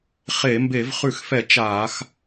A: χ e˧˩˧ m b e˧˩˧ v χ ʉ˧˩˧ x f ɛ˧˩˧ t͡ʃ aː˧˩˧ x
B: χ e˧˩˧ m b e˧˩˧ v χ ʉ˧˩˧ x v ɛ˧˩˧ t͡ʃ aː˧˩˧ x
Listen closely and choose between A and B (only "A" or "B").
A